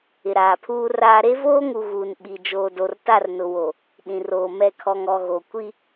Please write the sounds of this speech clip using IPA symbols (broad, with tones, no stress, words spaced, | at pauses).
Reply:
ɪ˨ɾaː˨pʰuː˦raː˦ ɾe˦voː˦ŋu˨ ɣuː˨n ɓi˨ d͡ʒoː˨do˨rta˦˨rnʊ˨ wo˨ | ɗĩ˨roː˨mɛ˦˨ kʰɔ˨ŋɔ˨ɣo˨kʷi˦